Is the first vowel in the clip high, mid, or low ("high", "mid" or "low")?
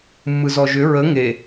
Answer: high